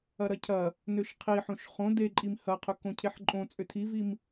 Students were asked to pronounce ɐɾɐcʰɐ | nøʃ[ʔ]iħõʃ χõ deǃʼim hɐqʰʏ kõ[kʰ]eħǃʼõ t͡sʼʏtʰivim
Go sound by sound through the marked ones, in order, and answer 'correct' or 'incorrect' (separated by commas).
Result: incorrect, incorrect